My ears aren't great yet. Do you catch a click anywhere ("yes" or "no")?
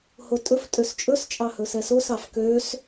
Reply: no